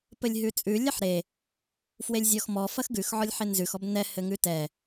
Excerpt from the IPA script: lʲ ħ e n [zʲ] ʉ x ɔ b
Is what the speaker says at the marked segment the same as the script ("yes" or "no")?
no